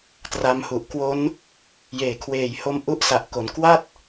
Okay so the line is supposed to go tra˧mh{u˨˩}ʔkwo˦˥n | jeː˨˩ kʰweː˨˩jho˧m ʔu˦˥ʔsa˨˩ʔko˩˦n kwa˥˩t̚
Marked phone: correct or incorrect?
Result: correct